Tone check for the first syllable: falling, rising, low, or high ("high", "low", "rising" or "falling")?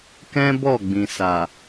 high